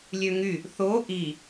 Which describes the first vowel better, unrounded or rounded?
rounded